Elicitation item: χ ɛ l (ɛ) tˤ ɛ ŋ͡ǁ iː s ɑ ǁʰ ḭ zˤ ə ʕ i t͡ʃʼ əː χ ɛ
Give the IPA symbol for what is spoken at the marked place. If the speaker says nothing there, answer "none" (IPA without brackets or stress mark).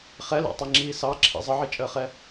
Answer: ɛ̰